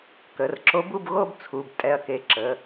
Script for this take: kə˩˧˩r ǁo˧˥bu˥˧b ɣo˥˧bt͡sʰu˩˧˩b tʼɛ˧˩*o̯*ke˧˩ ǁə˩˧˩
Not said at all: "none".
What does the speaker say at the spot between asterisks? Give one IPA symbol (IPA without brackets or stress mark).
ɐ̯